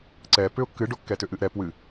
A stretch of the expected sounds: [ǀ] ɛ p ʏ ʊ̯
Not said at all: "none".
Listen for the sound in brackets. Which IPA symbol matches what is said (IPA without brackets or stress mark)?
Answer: ǀ